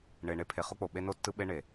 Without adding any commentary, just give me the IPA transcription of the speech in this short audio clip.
ɳ e˨ ɳ e˦˨ pʰ e˨ χ o˦ k͡p o˨ ɓ e˦ n o˦ tː ɯ˦ ɓ e˦ ɳ e˨

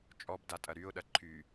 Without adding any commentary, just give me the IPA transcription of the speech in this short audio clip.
t͡ʃʼ ɔ b d a tʼ ɐ ɾ y ʊ̯ ɗ ɐ ǃʰ y

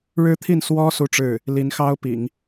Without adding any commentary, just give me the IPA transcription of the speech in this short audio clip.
ɻ ɻ̩˥ t̪ʰ i˥˩ n s w ɔ˥ s u˥˧ ʈ͡ʂ ɻ̩˥˩ | l i˧˥ n x ɑ˥ ʊ̯ p ḭ˨˩˦ ŋ

